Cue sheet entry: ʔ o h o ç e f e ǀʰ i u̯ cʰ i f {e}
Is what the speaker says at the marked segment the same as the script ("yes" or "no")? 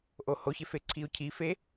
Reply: yes